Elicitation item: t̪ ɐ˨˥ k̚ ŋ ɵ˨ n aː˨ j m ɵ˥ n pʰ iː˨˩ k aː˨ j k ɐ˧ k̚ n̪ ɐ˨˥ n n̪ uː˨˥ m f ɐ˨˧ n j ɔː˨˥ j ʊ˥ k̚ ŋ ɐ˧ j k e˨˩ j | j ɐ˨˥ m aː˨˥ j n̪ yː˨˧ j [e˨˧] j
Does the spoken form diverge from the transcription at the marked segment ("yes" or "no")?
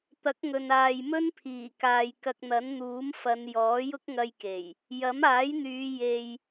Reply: yes